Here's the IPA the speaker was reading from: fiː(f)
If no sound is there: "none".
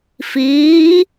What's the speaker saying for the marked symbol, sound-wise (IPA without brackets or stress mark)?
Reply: none